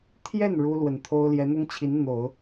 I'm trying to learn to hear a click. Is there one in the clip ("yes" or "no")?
no